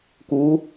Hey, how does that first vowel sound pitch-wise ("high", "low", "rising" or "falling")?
rising